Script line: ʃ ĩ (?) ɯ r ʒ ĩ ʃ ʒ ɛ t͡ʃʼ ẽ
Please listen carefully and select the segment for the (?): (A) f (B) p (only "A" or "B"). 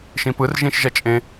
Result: B